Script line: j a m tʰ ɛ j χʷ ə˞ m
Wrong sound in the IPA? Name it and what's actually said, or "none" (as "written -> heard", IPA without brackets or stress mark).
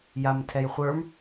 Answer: none